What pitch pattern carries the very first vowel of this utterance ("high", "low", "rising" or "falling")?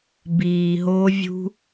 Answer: low